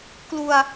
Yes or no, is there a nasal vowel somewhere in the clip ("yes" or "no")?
no